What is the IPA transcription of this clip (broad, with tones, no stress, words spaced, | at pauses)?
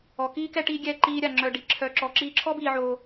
ɔ˨kiː˧kɛ˧ ʈiː˦ɡʲɛː˦ǃiː˦ɾʲa˧ ŋ͡ǁœ˧ɖi˧ ǁʰœ˧ǁɔ˧ ǁiː˧ǁʰɔ˦biː˧ ʕoː˧